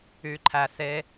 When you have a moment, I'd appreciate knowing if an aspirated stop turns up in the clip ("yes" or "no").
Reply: yes